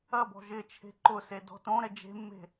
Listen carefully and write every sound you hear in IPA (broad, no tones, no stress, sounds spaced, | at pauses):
ɐ b ɔ̤ ʒ ɪ t͡ʃʰ e̤ ǃ ʊ s e d ɔ̤ t õ ɾ ɛ d͡ʒ e̤ mː e̤